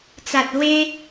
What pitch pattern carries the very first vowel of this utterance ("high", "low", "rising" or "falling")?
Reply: low